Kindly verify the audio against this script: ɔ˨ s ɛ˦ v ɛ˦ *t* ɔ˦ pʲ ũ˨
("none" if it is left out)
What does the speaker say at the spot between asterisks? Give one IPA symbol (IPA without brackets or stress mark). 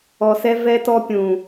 t